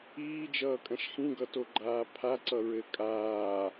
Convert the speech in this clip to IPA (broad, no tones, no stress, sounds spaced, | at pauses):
iː d͡ʒ ʌː kʼ ɐ̃ ʃ x ĩ ɡ ʌ t o ɡ͡ǃ aː pʰ a ǀ ʌ ɹ ɘ kʼ aː